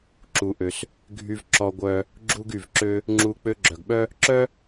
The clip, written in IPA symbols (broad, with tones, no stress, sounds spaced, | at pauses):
ǁ u˩ ʔ ø˩ s | ɡʱ y˧ v ǁ ɔ˧ ɡʷ œ˧ | ɡ͡ǁ u˧ ɡ y˩ v ǁ ø˧ | ŋ͡ǁ u˧ k͡p ø˧ ɡ͡ǁ œ˩ ɡ ɓ œ˥ | ǁ œ˥